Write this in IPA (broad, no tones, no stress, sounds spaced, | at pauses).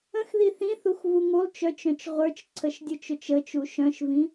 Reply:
ə̃ x ð i θ ĩ θ u x v u ŋ u lˠ t͡ʃ œ t͡ʃ œ̃ t͡ʃ ʁʷ ə˞ t͡ʃ ǀʰ ə ʃ dʲ ʊ t͡ʃ ʊ t͡ʃ ə t͡ʃ u ʃ œ̃ ʃ v ĩ